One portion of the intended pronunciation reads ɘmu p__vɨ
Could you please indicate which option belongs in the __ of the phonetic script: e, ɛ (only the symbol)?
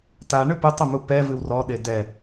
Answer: ɛ